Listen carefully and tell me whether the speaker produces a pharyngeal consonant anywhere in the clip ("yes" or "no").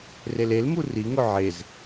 yes